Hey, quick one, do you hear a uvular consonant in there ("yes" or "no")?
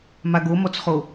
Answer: yes